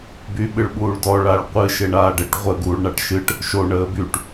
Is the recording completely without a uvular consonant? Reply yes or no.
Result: no